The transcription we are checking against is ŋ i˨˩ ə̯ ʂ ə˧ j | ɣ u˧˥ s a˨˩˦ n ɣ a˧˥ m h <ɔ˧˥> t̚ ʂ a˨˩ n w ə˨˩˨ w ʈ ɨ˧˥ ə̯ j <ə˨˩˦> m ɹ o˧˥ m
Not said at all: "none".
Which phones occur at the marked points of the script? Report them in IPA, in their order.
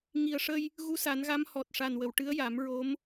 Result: ɔ˨˩, a˨˩˦

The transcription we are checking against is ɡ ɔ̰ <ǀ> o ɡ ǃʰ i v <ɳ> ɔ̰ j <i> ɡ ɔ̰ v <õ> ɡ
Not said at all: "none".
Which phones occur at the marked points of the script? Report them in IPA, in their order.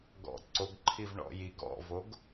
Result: ǀ, ɳ, i, o

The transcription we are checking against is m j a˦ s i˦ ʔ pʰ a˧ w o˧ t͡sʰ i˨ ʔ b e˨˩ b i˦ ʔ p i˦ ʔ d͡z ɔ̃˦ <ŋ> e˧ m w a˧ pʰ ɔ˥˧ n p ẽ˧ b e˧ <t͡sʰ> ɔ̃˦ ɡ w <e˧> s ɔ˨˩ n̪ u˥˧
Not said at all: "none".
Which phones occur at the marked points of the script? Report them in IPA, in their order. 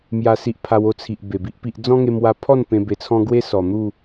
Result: ŋ, t͡sʰ, e˦

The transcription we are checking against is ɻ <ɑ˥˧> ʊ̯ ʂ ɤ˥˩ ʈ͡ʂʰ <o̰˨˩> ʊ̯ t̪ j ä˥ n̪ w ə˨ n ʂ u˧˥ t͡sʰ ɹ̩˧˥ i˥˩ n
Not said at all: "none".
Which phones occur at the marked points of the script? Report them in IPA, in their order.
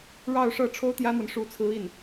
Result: ɑ˥˧, o˥

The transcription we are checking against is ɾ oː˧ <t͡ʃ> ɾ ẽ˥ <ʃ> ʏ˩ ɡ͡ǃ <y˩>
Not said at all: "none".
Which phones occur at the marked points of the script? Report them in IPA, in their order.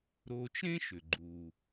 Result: t͡ʃ, ʃ, u˩

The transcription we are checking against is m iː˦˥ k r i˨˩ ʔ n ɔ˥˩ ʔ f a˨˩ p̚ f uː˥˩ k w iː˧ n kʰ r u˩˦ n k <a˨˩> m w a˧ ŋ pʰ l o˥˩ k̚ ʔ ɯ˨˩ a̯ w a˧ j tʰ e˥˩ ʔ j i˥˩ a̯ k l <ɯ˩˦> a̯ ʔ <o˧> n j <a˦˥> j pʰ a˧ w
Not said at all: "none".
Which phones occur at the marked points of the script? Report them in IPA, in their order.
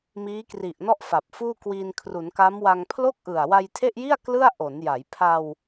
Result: a˦˥, ɯ˥˩, o˩˦, a˩˦

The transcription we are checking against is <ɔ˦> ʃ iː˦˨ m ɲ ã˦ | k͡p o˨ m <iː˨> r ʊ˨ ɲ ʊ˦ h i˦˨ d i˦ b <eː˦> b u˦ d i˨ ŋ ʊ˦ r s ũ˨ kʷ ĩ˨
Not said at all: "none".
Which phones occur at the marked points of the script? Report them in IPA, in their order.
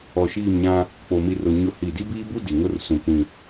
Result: ɔ˨, i˨, iː˦

